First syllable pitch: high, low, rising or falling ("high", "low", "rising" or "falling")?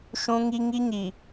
high